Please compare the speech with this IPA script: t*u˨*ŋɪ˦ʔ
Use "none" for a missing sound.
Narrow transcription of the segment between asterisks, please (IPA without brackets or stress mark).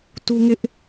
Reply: u˦